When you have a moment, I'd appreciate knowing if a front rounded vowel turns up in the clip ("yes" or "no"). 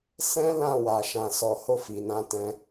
no